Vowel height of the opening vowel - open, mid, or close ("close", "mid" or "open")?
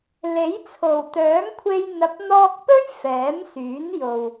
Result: mid